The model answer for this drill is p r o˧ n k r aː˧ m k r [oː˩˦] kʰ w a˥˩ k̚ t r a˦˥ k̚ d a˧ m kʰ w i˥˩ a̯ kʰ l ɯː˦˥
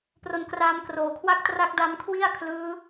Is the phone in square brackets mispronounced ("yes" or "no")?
yes